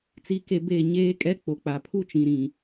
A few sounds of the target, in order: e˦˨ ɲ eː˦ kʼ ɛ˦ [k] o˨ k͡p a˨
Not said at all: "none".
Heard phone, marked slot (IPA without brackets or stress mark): k͡p